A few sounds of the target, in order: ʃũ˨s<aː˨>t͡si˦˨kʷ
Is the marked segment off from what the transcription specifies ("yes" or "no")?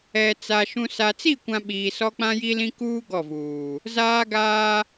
yes